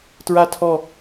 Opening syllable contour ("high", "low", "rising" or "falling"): high